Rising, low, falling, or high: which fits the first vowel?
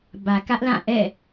low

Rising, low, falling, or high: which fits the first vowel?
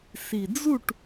low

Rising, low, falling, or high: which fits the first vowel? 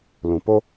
low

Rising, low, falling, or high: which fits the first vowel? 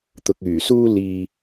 low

